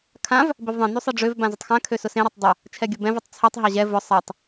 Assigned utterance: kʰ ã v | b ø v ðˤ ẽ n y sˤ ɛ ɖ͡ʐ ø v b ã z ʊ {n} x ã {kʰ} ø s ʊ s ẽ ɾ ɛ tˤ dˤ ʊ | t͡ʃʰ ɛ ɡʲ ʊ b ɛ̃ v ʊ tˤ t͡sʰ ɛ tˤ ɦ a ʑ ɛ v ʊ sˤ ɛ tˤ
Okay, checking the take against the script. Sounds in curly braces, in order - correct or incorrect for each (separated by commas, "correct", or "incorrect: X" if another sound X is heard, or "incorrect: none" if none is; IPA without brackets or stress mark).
incorrect: tˤ, correct